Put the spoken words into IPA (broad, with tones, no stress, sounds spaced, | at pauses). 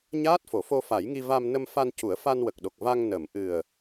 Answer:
ɲ aː˦˥ t̚ f o˨˩˨ f o˧ f a˨˩˦ j ŋ i˧ v a˧ m n ə˧ m f a˧ n c u˨˩˦ ə̯ f a˧ n w ə˨˩ k̚ ɗ o˨˩ k̚ v a˧ ŋ n əː˨˩˨ m ʔ ɨ˨˩ ə̯